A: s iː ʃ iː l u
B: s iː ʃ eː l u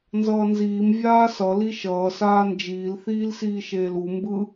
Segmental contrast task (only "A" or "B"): B